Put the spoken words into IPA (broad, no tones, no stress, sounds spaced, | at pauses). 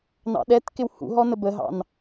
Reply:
n ɑ̰ ɗ ɛ t k ɪ w h ṵ ɦ ɔ n ə b ə ɦ ɑ̰ n